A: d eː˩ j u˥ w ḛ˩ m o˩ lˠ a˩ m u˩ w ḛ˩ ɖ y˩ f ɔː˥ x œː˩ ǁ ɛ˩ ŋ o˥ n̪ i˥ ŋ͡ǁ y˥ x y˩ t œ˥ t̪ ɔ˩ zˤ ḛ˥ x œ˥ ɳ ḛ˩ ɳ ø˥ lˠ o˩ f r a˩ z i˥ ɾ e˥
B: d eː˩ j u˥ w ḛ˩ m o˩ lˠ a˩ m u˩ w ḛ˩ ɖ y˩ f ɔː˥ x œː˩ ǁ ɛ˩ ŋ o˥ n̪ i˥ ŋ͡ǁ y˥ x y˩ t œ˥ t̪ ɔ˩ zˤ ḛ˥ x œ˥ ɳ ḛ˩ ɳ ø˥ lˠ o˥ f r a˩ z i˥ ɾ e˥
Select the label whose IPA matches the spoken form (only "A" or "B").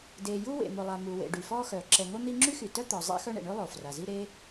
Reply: A